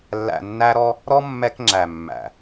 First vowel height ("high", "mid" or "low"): low